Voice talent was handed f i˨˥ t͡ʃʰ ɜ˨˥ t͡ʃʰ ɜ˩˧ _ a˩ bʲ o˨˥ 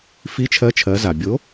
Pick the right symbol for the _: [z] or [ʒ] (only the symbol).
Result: z